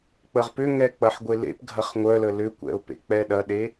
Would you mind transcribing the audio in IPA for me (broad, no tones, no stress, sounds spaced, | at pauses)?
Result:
k͡p ə ʁ p ʏ ŋ ɛ k͡p ɐ ħ ɡʷ e l ḛ p ɡʱ ɐ χ ŋʷ œ l ə l ʏ kʷ ɛ̰ ʊ̯ p ḛ k͡p ɛ ɗ ɐ ɗ e